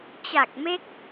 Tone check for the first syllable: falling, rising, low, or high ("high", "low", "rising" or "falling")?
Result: low